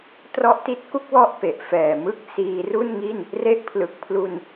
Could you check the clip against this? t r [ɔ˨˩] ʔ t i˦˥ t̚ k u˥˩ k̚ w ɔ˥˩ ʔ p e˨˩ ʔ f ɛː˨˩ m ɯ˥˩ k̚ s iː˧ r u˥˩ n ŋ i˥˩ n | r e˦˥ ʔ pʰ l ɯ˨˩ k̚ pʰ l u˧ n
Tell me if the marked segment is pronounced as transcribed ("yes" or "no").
no